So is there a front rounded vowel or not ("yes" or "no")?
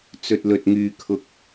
yes